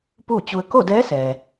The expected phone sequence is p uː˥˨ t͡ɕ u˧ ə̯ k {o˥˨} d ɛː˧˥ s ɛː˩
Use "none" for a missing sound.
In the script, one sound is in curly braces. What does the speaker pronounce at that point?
o˥˨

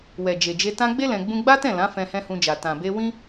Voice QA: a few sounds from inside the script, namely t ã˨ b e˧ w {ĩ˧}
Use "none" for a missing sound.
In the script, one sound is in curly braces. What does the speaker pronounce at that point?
ĩ˦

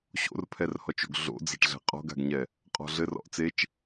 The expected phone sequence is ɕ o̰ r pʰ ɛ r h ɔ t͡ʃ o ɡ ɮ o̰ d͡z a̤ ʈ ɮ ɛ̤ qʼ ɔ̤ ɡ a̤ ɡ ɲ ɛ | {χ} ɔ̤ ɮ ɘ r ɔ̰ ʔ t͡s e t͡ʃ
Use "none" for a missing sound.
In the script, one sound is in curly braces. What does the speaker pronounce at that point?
qʼ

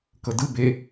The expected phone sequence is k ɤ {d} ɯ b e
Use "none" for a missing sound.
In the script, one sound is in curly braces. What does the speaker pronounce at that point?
d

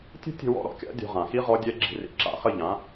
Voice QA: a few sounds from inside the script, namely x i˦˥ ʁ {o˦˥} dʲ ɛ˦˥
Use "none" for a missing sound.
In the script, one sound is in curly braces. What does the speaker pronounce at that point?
ɔ˦˥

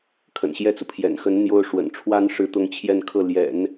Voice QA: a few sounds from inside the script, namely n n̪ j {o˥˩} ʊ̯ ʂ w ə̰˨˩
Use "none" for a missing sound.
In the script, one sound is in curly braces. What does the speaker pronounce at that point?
o˥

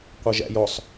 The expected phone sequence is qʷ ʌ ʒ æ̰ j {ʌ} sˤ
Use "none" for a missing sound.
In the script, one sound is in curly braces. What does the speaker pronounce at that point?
ɔ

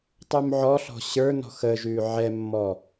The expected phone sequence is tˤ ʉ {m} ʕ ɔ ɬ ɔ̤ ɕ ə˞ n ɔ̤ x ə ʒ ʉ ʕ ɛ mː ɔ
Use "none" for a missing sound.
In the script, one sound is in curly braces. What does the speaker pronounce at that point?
m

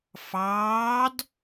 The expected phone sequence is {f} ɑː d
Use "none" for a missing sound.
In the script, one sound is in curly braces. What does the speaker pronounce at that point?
f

